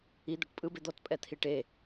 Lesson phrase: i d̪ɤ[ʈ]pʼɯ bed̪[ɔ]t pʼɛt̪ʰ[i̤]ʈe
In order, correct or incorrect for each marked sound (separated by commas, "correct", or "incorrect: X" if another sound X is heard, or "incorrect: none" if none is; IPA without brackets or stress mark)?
correct, correct, incorrect: i